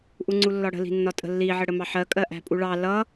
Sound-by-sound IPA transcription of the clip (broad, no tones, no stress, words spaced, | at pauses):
ʔuŋ͡ǀulːɒɽə̤ li̤nːɒtʼə̤lːi ʕəɽəmɑħɜ kʼɜʔæ̤pʼuɭɑ lʌ